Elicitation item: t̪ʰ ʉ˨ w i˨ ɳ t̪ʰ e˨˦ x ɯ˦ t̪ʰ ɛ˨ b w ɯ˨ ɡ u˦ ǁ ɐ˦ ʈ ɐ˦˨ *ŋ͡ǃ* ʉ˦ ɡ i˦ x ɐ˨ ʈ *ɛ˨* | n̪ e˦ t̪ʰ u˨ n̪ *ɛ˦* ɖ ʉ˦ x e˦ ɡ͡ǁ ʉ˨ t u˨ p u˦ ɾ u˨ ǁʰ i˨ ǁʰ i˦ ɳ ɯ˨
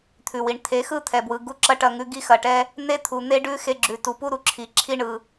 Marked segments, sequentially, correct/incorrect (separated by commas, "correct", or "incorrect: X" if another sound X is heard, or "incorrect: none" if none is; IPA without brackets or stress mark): incorrect: ŋ, incorrect: ɛ˦, incorrect: e˦